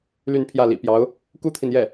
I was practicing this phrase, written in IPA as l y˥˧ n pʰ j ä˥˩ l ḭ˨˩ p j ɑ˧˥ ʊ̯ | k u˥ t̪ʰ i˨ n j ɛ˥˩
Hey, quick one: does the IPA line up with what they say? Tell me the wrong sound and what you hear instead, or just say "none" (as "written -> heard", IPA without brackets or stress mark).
none